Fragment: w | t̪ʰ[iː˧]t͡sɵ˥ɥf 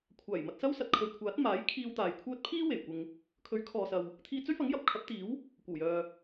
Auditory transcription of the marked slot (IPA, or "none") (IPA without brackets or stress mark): iː˧